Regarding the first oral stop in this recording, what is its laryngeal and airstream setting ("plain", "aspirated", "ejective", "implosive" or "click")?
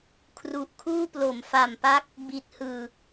aspirated